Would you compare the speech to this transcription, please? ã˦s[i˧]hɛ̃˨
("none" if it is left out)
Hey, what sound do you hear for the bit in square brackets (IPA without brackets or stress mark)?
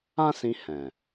ĩ˧